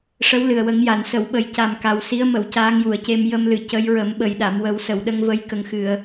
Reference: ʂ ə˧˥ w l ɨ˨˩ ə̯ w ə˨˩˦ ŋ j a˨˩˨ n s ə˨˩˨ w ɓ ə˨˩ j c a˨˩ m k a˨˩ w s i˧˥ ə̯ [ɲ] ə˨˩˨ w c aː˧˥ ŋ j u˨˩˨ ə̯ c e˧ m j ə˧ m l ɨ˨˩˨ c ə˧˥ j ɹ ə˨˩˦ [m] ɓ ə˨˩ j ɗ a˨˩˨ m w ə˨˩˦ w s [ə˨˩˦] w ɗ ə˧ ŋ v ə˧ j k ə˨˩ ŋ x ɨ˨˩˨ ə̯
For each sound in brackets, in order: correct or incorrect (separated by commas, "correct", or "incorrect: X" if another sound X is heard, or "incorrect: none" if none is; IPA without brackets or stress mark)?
incorrect: m, correct, incorrect: ə˨˩˨